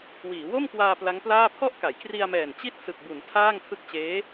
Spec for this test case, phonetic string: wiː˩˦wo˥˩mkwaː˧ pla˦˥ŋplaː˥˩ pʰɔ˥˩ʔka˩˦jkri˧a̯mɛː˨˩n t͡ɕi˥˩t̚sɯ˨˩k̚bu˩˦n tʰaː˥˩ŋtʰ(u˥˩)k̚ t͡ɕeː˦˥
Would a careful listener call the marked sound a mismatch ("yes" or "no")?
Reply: yes